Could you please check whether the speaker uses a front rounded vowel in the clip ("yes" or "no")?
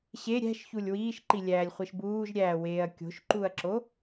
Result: no